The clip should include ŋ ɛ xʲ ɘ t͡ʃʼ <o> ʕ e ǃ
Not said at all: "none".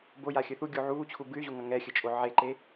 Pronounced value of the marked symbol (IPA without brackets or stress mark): o